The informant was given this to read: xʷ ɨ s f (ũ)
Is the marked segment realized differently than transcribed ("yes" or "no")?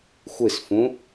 no